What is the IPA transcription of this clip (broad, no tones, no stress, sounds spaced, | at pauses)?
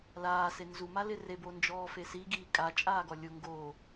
l aː s e n z u m a l ɪ r e b o n d͡ʒ ɔː f e s i ɡ iː kʼ a t͡ʃʼ aː ɡ ɔ lʲ ʊ ŋ ɡ o